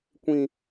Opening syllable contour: low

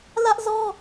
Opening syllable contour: high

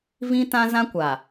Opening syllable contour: high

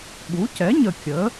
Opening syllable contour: rising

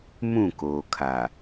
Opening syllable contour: falling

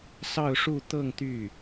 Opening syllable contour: falling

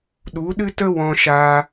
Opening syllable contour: rising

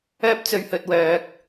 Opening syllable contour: high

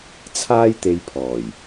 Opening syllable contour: high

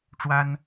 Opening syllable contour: high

